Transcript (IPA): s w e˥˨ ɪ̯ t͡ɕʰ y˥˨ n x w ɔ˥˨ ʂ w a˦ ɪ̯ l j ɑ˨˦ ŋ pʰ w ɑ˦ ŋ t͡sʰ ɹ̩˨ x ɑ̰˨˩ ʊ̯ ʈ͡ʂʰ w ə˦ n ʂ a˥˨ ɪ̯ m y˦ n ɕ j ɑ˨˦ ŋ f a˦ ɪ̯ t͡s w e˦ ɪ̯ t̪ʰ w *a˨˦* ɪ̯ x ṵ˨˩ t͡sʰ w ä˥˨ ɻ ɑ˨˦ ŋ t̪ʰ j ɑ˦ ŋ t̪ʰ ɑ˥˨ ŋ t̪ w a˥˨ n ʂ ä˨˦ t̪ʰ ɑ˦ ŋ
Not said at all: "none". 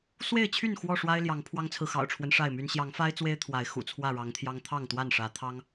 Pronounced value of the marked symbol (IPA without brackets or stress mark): a˨˦